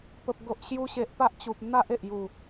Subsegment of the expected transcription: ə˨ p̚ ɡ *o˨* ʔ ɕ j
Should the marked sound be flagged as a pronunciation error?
no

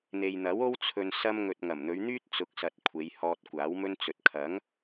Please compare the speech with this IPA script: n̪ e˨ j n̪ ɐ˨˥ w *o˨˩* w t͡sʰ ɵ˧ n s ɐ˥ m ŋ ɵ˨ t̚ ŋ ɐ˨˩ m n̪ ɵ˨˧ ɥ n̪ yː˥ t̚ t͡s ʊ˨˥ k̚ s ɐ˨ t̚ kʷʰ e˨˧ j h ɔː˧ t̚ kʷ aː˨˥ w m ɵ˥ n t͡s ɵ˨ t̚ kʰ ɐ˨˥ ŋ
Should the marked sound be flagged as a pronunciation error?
yes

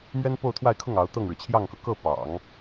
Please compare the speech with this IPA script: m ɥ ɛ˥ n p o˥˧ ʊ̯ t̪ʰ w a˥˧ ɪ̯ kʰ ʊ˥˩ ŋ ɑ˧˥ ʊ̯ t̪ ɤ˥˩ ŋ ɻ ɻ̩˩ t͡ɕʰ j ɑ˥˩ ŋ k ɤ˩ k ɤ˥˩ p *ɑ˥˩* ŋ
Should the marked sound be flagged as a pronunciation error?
yes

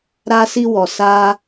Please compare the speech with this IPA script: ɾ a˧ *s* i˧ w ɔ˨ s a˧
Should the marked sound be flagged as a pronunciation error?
no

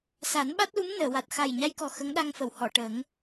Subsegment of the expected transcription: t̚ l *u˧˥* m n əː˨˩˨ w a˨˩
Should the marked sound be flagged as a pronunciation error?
no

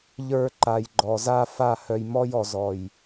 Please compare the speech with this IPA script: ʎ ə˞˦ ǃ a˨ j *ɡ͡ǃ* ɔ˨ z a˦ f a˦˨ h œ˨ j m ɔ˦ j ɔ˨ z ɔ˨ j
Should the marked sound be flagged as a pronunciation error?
no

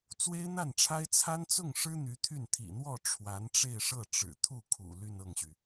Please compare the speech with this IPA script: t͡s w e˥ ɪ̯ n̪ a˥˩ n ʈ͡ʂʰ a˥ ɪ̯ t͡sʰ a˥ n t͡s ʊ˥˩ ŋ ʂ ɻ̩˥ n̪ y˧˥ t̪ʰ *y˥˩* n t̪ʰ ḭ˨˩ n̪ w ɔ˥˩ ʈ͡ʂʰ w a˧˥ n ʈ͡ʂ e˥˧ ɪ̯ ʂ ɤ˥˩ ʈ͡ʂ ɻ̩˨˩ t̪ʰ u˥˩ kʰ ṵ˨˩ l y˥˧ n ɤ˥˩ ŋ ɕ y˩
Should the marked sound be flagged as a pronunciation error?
no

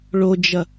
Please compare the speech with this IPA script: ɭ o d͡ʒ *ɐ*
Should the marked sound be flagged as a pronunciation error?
no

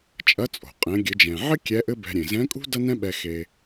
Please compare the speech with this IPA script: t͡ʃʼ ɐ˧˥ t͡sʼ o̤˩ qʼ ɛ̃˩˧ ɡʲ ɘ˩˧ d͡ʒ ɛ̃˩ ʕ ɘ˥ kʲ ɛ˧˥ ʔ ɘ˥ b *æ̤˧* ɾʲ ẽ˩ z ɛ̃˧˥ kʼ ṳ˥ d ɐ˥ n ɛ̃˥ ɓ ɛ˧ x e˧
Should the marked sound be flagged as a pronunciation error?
yes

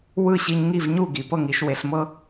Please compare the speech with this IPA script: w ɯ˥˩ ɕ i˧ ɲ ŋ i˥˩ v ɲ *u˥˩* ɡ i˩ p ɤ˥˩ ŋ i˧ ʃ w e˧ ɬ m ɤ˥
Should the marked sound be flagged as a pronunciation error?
no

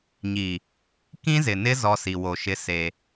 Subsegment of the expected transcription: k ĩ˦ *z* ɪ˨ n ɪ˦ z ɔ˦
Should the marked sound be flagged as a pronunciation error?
no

